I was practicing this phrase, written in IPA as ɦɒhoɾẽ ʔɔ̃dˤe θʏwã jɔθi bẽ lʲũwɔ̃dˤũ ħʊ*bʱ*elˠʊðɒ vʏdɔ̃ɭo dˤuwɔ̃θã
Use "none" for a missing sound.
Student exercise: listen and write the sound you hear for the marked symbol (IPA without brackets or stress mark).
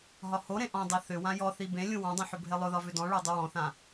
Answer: bʱ